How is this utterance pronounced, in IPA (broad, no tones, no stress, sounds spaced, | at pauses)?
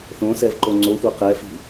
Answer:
θ õ s ɛ v ǃ o ŋ͡ǀ o xʷ ɤ q ɛ f i̤